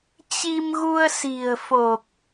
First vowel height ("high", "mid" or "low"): high